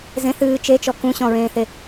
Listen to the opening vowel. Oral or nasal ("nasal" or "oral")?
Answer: nasal